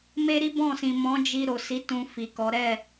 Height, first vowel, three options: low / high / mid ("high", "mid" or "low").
mid